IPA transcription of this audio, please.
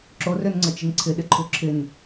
ǁ o r ø n ŋ͡ǀ ɤ t͡ʃ ɪ n ǀʰ ɪ ɗ ɪ ǃʰ u ǁʰ ɪ n

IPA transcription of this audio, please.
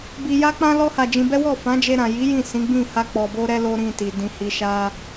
b i˧ j a˦ k͡p ã˦ l ɔ˦ h a˧ d͡ʒ ĩ˧ b ɛ˦ w ɔ˦˨ f ã˨˦ d͡ʒ e˧ ɾ ã˨ j i˨˦ j ĩ˦˨ s ĩ˨˦ ɡ͡b ĩ˦˨ h a˧ k͡p ɔ˨ b o˧ ɾ ɛ˧ l o˦ ɾ ĩ˦˨ t i˨ d ĩ˧ h i˧ ʃ a˦

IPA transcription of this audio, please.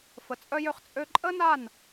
f ə˨ t͡sʼ œ˦ j ø˦ χ t͡sʼ ø˦ ǃʼ ə˦ n a˦˨ n

